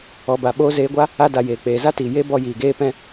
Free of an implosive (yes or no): no